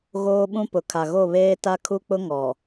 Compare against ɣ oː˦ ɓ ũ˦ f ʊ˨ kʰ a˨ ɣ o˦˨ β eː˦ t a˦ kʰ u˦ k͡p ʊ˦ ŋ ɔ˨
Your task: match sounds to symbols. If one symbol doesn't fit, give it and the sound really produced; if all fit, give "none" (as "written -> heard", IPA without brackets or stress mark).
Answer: f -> p